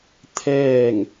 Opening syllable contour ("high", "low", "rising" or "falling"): falling